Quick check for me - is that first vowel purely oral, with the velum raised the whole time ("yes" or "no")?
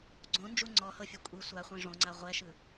no